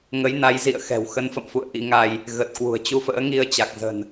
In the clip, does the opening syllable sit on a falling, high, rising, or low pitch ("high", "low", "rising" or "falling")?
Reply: rising